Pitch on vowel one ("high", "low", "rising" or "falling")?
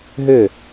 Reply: falling